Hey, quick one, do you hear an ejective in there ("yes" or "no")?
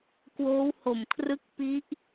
no